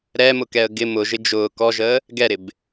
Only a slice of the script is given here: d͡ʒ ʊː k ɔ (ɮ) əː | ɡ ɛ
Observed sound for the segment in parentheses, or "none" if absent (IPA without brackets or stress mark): ʒ